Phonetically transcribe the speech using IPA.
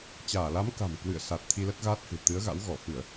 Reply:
t͡ɕ aː˧˩ l a˨˦ m k a̤˨˩ m k w ɨ̰˧˨ ə̯ s a˨˩ t̚ t̪ʰ i˧ l ə˦˥ t̚ ɣ aː˦˥ t̚ h ɨ̤˨˩ t̪ ɨ˨˦ ə̯ ɣ a̰˧˥ w ɣ ɔ˧˩ f ɨ˧˩˨ ə̯

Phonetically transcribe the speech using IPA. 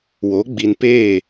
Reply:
w o˨˦ ɡ͡b i˨ n p eː˦˨

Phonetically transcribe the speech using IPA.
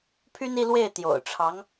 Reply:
pʰ y˥ n i˥˧ l w e˥˩ ɪ̯ t̪ j o̰˨˩ ʊ̯ ʈ͡ʂʰ ɑ˧˥ ŋ

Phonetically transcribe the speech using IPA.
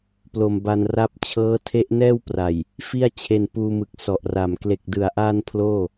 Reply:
p l o˧ m b a˧ n r a˦˥ p̚ t͡ɕʰ ɤː˦˥ tʰ e˦˥ ʔ n ɛː˥˩ w p r a˨˩ j | f i˥˩ a̯ t͡ɕʰ e˧ n p uː˧ m ɯ˨˩ k̚ s ɔ˨˩ ʔ r a˨˩ m k l e˨˩ k̚ d ɯ˩˦ a̯ ʔ aː˧ n pʰ l oː˥˩

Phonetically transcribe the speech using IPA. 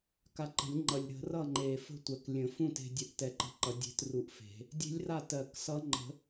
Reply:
k a˧ ǃ ə̤˨˩˦ lʲ ŋ͡ǃ ʌ˨˩ lʲ ɾ ə̤˨˩˦ r ʌ˥˩ ŋ͡ǃ e˨˩ f ə̤˥˩ tʷ ɜ˨˩ k lʲ ə̃˨˩˦ f ũ˥˩ t e̤˧ dʲ ə˧˥ ʔ t ɛ˧ ǃ ə̤˧˥ ǃ ʌ˨˩˦ dʲ e̤˧˥ t r u˧˥ ʔ f e̤˨˩˦ | dʲ e̤˧˥ lʲ r a˥˩ t ɜ˨˩˦ k s ʌ˧˥ ŋ͡ǃ ə̤˨˩˦

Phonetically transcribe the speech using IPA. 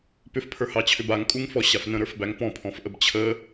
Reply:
p ʏ f pʰ ə˞ h ɑ t͡ɕʰ ʏ b a ŋ kʼ u ŋ f ɔ ɕ a f n ə̃ ɾ ə˞ f b æ ŋ p ɔ̃ pʰ ɔ̃ f ʔ ə b t͡ɕʰ ə

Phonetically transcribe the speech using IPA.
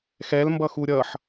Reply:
x ɛ l m b ʌ x u ɾʲ ʌ ħ

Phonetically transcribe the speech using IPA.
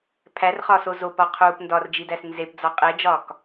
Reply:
pʰ æ r χ ɒː s o z o p ɒ qʰ uː p n d ɒ r d͡ʒ i d æ s n z e p d͡z ɒ qʼ e d͡ʒ ɒː k

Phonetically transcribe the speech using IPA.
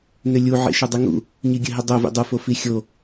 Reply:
n ʏ lʲ u ʕ ḭ ʃ ɘ dˤ i ŋ ṵ | ɲ i ɡʲ ɘ ɦ i dˤ o v ḭ dˤ u f o f i xʲ o

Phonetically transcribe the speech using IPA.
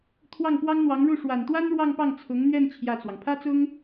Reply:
t̪ʰ w ɑ˥˩ ŋ p w ɑ˥ ŋ n̪ w ɑ˧˥ ŋ ɻ u˥˩ ʂ w a˨˩ n t̪ w a˥ n ɻ w ɑ˥˧ ŋ p ɑ˥˩ ŋ t͡sʰ ʊ˧˥ ŋ n̪ ɥ ɛ˥˧ n t͡ɕʰ j ä˥˩ t͡s w ɑ˩ ŋ pʰ ä˥ t͡s ʊ˥ ŋ

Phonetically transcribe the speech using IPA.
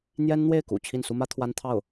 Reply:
n̪ j ɛ˥ n n̪ w e˥˩ ɪ̯ k ṵ˨˩ t͡ɕʰ i˥˩ n s u˥ m ä˥ t̪ʰ w a˥ n t̪ʰ ɑ˥˩ ʊ̯

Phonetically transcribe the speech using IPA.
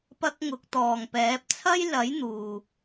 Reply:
p ɐ˥ k̚ ŋ ʊ˧ k̚ t̪ ɔː˨ ŋ p ɛː˨˥ p̚ t͡sʰ ɐ˥ j l ɐ˨˥ j n̪ uː˨

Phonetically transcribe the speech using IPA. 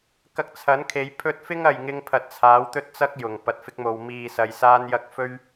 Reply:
k ɐ˧ k̚ t͡sʰ ɐ˨˥ n kʰ e˨˧ j pʰ ɵ˥ t̚ f ɪ˥ ŋ ɐ˨ j ŋ ɪ˧ ŋ pʰ ɐ˨ t̚ t͡sʰ aː˨˥ w t̪ ɵ˥ t̚ t͡s ɐ˥ k̚ j ʊ˨˩ ŋ p ɐ˨ t̚ f ɪ˥ k̚ m o˧ w m iː˨ s ɐ˧ j s aː˥ n j ɐ˥ k̚ f ɵ˥ ɥ

